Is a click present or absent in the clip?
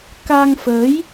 absent